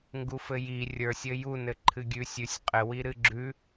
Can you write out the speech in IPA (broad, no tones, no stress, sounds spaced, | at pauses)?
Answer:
ŋ ɡ u f ɘ j i rʲ ə˞ sʲ ɘ j u n ɘ ǃʰ ɨ ɡʲ ʉ sʲ ʉ sʲ qʼ ɘ w i ɾ ɨ ɡ͡ǁ ʉ